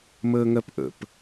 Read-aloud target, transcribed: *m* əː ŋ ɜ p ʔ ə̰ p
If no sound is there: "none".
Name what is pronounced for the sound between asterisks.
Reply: m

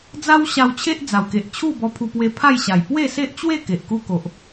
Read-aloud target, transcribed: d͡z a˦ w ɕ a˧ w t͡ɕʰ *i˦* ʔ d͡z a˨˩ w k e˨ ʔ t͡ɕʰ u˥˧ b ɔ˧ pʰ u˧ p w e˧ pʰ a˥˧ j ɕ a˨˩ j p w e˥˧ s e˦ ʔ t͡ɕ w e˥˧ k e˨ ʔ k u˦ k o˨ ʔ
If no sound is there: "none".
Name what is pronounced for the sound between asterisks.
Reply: e˦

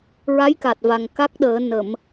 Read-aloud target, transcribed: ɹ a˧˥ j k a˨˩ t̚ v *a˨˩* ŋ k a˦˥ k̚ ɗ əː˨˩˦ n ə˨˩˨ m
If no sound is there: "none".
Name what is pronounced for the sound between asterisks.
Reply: a˨˩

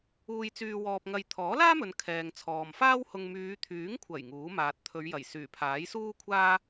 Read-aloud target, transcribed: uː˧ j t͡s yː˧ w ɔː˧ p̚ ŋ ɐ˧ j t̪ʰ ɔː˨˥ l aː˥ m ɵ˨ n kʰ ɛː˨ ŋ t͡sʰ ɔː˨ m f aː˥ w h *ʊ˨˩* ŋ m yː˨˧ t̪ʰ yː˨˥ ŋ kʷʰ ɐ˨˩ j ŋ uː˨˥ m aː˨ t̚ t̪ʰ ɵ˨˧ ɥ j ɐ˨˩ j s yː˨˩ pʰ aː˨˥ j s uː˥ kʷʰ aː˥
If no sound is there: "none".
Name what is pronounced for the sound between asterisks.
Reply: ʊ˧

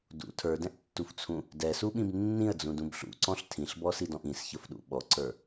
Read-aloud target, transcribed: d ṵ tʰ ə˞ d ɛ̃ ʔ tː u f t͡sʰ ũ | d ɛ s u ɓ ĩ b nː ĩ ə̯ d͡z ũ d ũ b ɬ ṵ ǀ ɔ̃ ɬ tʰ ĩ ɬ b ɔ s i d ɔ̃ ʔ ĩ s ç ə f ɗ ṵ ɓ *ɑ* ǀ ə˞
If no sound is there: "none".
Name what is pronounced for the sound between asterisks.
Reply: ɔ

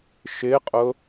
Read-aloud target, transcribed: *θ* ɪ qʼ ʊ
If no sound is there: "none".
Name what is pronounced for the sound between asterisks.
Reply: ʃ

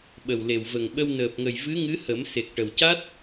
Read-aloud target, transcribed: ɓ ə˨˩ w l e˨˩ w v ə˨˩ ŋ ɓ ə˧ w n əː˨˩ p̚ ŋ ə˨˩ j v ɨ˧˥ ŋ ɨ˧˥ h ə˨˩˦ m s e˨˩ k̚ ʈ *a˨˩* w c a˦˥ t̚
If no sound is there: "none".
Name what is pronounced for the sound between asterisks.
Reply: ə˨˩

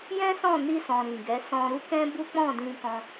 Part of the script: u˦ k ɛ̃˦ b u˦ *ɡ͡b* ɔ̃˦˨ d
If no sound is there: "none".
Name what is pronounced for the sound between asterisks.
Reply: k͡p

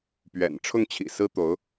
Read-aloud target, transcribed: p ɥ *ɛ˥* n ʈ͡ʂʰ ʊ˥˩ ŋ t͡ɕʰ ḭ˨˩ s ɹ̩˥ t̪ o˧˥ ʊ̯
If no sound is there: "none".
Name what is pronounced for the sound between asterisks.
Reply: ɛ̰˨˩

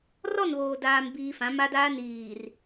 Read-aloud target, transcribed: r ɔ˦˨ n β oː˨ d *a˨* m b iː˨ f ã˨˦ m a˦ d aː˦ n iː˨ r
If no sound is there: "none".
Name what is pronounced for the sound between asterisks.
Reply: aː˨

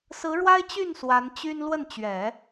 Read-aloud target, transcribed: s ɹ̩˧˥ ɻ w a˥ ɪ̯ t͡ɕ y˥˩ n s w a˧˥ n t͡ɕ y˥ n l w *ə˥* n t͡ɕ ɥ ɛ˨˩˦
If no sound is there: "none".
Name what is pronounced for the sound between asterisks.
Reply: ə˥˩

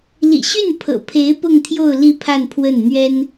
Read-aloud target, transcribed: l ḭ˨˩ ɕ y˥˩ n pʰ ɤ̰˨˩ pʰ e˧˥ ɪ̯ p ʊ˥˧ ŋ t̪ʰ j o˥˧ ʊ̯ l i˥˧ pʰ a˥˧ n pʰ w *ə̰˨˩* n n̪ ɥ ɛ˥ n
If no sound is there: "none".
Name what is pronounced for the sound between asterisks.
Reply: ə˥˩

